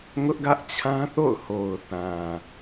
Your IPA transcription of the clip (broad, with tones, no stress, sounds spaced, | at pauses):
ŋ ʊ˦ ʔ ɡ ä˦ ʔ t͡ɕʰ ã˦ θ o̰˦˨ ʊ̯ h o˨ ʊ̯ θ ã˨